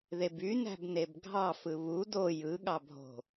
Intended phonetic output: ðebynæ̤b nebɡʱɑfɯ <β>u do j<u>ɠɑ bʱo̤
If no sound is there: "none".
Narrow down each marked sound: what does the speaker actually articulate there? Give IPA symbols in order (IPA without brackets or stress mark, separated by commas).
β, ɯ